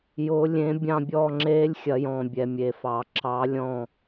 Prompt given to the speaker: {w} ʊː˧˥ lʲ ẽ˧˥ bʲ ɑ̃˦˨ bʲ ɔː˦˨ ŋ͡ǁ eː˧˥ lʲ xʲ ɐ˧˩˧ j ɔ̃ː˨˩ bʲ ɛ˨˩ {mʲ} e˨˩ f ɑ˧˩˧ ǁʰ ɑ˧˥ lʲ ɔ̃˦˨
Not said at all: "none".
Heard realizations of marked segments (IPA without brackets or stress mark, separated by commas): j, mʲ